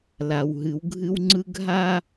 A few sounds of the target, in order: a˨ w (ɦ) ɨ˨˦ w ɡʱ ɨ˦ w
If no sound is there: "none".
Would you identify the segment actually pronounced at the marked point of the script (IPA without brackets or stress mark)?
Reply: ɦ